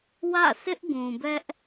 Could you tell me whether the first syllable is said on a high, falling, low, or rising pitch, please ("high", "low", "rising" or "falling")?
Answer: falling